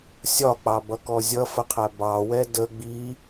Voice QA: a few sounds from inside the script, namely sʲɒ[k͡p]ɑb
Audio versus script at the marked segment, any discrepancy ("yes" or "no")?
no